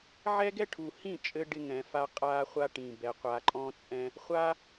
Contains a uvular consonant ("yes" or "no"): yes